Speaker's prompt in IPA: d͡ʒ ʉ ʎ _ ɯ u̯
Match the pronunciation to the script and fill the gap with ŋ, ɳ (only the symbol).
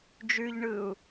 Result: ɳ